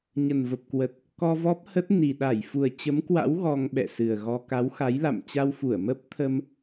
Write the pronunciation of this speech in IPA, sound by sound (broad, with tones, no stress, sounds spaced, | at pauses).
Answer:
ɲ ə˨˩ n v ə˨˩ p̚ k w ə˨˩ t̚ | k ɔ˧ v ɔ˦˥ p̚ h ə˦˥ t̚ n i˨˩ ɗ a˧˩ j f u˨˩ ə̯ t͡ɕ ə˨˦ m k w a̰˧˥ w ɣ ɔ˧ ŋ ɓ ɛ̰˧˨ s ɨ˨˩ ə̯ ɣ ɔ˧ k a˨˦ w x a˨˦ j l a̰˧˨ m t͡ɕ a˧ w f u˧˩ ə̯ m ə˦˥ p̚ t̪ʰ ə˧ m